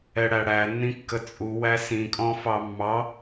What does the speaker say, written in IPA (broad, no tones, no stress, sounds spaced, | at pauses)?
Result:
ɛ ɽ æ ɽ æ nː ĩ kː ə t͡sʼ u w æ s ĩ kʼ ɔ̃ f ɑ mː ɑ